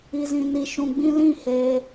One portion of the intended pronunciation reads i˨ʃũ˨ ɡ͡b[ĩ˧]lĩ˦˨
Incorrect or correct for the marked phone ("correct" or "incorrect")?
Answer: correct